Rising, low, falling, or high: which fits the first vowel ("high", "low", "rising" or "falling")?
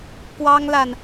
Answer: high